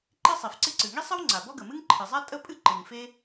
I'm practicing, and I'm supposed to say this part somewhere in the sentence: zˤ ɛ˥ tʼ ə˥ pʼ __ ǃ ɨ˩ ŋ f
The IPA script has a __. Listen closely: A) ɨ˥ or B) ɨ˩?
A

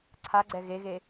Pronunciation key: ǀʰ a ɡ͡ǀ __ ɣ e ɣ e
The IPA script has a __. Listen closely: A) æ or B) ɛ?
B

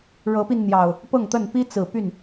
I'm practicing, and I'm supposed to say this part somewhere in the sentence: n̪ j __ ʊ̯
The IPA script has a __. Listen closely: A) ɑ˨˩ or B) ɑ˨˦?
A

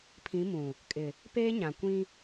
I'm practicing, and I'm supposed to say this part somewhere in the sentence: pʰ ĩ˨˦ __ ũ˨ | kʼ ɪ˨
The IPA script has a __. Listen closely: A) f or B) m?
B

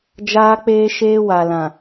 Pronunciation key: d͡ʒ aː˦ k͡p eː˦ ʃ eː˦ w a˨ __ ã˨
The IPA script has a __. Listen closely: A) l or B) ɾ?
A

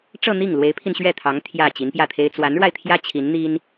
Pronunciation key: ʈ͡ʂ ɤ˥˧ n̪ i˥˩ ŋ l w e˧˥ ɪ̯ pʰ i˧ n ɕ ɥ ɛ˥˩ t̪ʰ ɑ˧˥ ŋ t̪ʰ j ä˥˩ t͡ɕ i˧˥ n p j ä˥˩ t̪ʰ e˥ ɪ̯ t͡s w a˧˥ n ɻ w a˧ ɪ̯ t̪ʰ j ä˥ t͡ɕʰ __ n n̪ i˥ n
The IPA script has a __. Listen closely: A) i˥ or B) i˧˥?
B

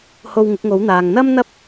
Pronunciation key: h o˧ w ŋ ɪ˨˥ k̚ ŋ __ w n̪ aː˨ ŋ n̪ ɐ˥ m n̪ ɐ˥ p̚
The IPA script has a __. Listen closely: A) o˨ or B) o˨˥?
B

